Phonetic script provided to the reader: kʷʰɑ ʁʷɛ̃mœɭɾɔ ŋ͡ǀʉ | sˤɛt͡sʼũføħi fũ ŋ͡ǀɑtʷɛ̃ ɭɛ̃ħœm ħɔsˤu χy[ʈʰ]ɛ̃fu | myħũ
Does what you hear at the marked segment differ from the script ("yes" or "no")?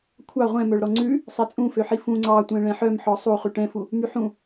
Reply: yes